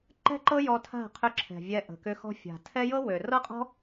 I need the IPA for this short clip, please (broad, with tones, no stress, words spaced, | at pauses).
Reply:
ǃɛ̤˦ǃɤ˦ jɔ˧tʰa̤˦˨qʰʏ˧ ǁʰɛ̤˨vʲɛ˧ʔə̤˨kʏ˧ xɔ̤˧fʲa̤˨tʰɛ˦ jɤ˦wø˨rɤ˦qʼɔ̤˦